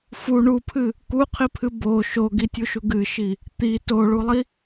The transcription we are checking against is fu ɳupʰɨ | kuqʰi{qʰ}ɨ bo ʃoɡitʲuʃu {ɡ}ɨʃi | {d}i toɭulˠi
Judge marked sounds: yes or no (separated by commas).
no, yes, no